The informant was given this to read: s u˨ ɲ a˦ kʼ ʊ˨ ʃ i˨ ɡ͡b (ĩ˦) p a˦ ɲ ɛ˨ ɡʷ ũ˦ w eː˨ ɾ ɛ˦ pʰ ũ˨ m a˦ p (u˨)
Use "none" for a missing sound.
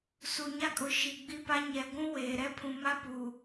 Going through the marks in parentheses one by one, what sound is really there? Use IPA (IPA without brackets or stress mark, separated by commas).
i˦, uː˨